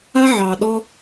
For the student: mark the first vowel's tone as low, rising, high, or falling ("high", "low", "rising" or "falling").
high